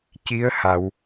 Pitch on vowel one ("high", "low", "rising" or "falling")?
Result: rising